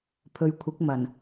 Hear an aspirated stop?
yes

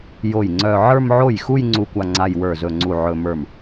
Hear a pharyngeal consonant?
yes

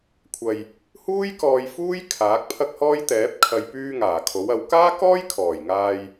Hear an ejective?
no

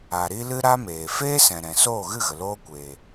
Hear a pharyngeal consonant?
no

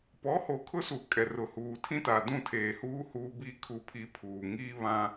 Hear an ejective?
yes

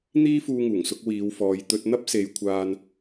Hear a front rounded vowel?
no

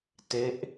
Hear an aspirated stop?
no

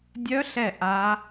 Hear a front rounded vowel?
yes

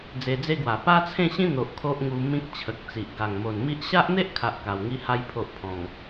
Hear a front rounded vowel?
no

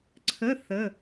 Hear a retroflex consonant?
no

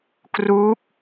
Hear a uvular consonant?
no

